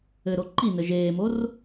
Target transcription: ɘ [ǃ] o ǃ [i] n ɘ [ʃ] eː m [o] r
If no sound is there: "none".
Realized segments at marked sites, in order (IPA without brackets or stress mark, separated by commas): ɾ, i, ʒ, o